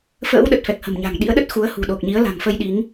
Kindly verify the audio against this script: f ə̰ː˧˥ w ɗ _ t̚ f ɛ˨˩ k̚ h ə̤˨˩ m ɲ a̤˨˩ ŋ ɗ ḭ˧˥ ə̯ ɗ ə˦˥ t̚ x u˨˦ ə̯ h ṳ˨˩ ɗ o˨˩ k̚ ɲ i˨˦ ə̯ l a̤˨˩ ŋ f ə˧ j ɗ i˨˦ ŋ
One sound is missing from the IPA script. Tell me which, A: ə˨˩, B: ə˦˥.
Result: A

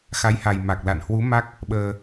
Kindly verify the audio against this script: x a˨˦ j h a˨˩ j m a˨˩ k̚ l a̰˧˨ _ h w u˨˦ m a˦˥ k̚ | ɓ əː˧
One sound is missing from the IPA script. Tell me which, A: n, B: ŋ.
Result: A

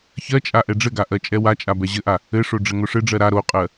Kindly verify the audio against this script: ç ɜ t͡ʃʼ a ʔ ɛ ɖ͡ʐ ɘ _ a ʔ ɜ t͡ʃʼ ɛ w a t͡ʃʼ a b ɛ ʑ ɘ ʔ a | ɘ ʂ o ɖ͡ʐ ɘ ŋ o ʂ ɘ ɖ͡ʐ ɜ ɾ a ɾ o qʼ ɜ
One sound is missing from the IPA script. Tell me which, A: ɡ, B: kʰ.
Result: A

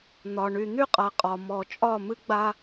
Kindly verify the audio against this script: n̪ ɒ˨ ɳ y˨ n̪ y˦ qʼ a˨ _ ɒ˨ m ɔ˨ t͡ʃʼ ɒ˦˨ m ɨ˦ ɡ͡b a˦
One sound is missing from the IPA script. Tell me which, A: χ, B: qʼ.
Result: B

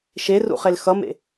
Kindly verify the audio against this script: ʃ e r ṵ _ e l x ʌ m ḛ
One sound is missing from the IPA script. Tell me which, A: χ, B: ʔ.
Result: A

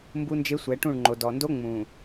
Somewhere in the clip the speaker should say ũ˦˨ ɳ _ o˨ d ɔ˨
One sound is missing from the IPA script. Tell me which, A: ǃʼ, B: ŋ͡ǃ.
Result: B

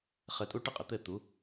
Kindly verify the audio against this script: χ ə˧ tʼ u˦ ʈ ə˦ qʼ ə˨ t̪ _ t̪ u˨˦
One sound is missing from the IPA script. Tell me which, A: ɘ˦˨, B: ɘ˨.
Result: A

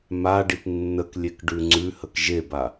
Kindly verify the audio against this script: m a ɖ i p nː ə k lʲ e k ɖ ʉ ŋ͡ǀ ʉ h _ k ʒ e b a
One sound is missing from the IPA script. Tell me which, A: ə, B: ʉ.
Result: A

